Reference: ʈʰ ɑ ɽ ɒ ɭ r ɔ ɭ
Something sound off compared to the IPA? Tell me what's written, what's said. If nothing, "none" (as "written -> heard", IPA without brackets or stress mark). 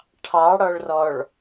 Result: none